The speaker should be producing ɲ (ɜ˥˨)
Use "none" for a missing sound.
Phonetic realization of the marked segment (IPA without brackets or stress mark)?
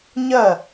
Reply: ɜ˥˨